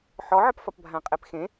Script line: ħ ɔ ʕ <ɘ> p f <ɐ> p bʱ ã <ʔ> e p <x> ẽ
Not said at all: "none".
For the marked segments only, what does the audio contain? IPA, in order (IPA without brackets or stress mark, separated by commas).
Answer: ɘ, ɐ, qʼ, x